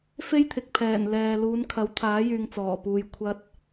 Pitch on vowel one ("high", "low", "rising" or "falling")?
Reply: high